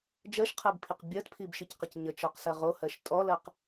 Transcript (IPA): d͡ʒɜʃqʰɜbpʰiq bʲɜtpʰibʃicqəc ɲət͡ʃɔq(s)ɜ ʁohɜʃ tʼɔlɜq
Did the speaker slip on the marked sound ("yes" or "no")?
no